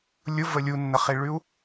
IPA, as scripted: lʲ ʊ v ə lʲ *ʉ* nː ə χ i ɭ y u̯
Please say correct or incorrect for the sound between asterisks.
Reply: incorrect: u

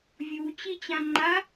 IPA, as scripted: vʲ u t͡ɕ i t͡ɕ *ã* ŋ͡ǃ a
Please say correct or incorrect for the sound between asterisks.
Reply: correct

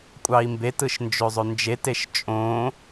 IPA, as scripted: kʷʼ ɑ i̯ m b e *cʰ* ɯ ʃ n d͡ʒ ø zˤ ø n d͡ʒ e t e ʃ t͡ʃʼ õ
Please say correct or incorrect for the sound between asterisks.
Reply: incorrect: t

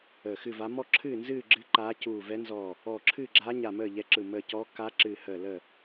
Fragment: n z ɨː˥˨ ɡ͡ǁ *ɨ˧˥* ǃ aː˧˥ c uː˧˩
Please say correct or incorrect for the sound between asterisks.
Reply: correct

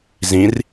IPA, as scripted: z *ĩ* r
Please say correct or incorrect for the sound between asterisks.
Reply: correct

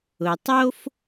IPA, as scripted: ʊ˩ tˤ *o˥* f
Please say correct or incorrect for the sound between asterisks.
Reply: correct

